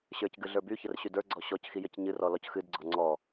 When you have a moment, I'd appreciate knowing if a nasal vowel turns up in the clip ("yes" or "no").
no